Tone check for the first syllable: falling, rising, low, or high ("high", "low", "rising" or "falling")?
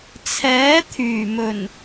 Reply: rising